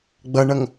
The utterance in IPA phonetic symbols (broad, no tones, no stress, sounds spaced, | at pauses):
ɡ͡b ʌ ɳ ʌ ŋ